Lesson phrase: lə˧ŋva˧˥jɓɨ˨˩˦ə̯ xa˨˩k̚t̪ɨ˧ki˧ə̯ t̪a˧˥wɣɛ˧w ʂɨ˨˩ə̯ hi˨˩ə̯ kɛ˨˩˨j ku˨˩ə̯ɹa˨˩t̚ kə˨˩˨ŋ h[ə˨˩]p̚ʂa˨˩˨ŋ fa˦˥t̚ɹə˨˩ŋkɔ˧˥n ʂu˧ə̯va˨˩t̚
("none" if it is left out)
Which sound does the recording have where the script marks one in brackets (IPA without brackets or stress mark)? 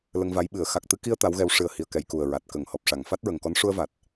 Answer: ɔ˨˩